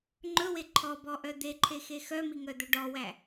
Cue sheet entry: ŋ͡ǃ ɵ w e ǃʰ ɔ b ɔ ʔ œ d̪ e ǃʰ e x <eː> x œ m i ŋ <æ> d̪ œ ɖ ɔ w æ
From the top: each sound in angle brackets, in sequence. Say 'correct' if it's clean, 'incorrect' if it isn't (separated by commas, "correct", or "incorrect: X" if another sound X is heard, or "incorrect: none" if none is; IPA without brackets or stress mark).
incorrect: e, incorrect: œ